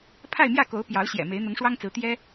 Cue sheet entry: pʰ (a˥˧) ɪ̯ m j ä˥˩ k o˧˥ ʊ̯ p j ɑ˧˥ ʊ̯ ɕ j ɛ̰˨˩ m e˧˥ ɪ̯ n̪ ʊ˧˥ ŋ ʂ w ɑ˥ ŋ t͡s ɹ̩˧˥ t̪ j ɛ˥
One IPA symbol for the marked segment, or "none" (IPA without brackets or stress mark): a˥˧